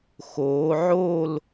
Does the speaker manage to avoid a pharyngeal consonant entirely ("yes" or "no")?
no